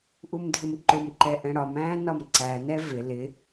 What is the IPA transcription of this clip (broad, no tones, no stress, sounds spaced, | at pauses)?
ʔ u m dʱ ɪ m ǃ ʊ m ǃ ɛ ʔ ɛ̃ ɽ ɒ m æ̃ː n ɒ m ǀ æ n ɛ v ɪ l ɪ